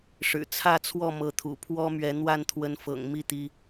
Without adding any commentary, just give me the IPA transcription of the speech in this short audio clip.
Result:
ʂ ɻ̩˨˩ t͡sʰ ä˥˨ t͡sʰ w ɔ˥˨ m ɤ˨˦ t̪ʰ ṵ˨˩ pʰ w ɔ˦ m ɥ ɛ˨˦ n̪ w a˥˨ n t̪ʰ w ə˨˦ n f ɤ̰˨˩ ŋ m i˥˨ t̪ i˦

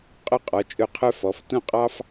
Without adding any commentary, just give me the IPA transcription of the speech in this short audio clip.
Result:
qʼ œ˧ qʼ ɔ˩˧ t͡ʃʼ ɵ˧˩ qʰ œ˧ f ɔ˩˧ f t õ˥˧ qʼ ɑ˥ f

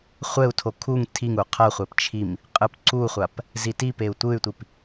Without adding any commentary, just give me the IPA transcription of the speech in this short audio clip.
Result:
χʷ ɛ u̯ tʰ o kʰ u ŋ tʰ i ŋ u qʰ ʌ χʷ ɛ p t͡ʃʰ i m | qʼ ɯ p ǀ u χʷ a p | z i t i p e u̯ tʷ ɯ y̯ tʷ i p

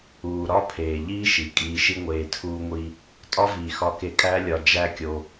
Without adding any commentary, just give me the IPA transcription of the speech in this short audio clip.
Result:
uː˨ ɾ ɒ˦ pʰ eː˨ ʎ iː˦ ʃ i˨˦ kʼ iː˧ ʃ i˦ ŋʷ eː˧ tʰ uː˦ ŋʷ i˦ | tʼ ɒ˦ v iː˨ x ɒ˧ k e˧ kʼ æ˦ lʲ ɒ˧ d͡ʒ æ˦ kʲ o˧

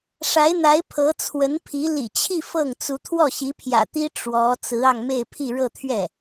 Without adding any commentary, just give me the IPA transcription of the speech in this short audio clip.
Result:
ʂ a˧˥ ɪ̯ n̪ a˧˥ ɪ̯ pʰ ɤ˧˥ t͡sʰ w ə˧˥ n pʰ i˧˥ l ḭ˨˩ t͡ɕʰ i˥˧ f ɤ˥˩ ŋ t͡s u˧˥ t̪ʰ w ɔ˥˩ ɕ i˧˥ pʰ j ä̰˨˩ t̪ i˥ ʈ͡ʂ w ɔ˧˥ t͡s ɹ̩˧˥ ɑ˧ ŋ m e˥˧ ɪ̯ pʰ i˥˧ ɻ ɤ˥˧ t̪ʰ ɥ ɛ˥˩

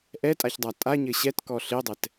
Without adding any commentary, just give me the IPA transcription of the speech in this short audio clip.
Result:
ʔ ɛ tʼ a ç dˤ a tʼ a ɲ ɘ ɕ ɛ t k ɔ ɬ ɪ dˤ ɛ t

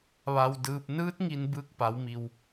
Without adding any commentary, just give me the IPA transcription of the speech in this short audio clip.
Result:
ʋ a˧ w d ɯː˧ p̚ n ɯː˧˥ t̚ ŋ i˧ n b ɯː˧ k̚ p a˩˧ w m i˩ w

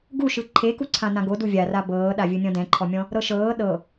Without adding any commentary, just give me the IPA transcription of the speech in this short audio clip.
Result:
ɡ u ʃ ɯ ǃʰ e k u ǀʰ ã n ã ɡ o d u vʲ a r a b ɤː ɗ a vʲ ɯ nʲ ɔ̃ d ɛ̃ ǃʰ ɔ mʲ ɔ̃ | ɾ ɤ ʃ ɤː ɗ ɤ

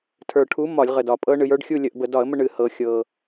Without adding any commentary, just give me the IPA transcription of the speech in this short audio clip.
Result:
tʰ ə˞˨˩ ʈʰ u˨˥ m ɒ˧˩˧ lʲ ʁ ə˨˩ d ɒ˨˩ pʼ ɤ˦ ɳ ɨ˩˧ j ə˞˨˥ ɖ xʲ u˥˨ lʲ ə˧˩˧ ʔ b ə˧˩˧ d ɒ˧˩˧ ə̯ m ə˥˨ ɳ ɨ˧˩˧ h ɤ˩˧ xʲ ɤ˨˩

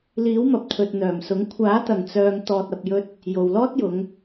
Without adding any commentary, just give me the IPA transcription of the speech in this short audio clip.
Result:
l iː˨˥ w m ɐ˨ p̚ t̪ʰ ɵ˨ t̚ n̪ œː˨˩ m s ʊ˨˥ ŋ kʷʰ aː˨˥ t̪ ɐ˨˩ ŋ t͡s œː˨ ŋ t̪ ɔː˨ t̚ ɐ˨ p̚ j ɵ˧ t̚ | j o˨ w l ɔː˥ t̚ j ʊ˨˧ ŋ

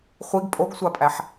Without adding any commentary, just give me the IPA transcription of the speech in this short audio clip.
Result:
χʷ i ɡ pʼ o ɡ sʷ a pʼ æ ħ

